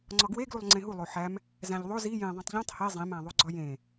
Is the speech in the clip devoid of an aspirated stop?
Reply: yes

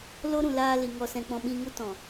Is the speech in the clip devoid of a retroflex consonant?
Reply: yes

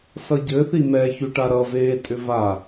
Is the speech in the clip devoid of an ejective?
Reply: no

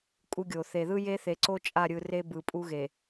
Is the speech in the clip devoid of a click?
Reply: no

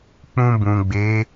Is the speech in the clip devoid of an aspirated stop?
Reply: yes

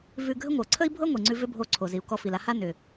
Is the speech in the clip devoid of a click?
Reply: no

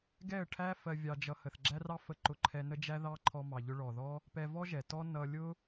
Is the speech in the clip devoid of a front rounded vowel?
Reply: yes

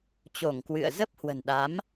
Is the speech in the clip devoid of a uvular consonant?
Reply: yes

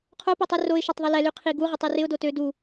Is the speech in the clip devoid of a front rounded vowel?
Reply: no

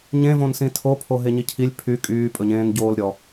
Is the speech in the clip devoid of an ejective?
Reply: no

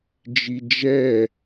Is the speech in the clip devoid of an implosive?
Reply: yes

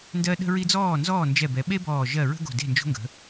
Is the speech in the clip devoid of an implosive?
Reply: no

